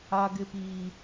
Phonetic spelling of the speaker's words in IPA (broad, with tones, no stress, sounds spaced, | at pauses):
a˦ ɡ ɪ˦ p iː˦